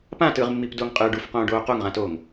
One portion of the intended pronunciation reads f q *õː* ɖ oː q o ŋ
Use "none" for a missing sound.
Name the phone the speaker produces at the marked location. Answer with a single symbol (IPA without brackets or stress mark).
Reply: õː